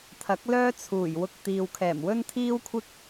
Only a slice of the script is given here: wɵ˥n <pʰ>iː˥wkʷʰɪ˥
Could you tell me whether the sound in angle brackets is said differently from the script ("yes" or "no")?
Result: yes